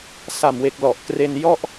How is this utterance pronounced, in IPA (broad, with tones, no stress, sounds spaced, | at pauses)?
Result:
s a˨˩ m w e˨˩ k̚ l ɔ˨˩ ʔ k r e˧ n j ɔ˥˩ ʔ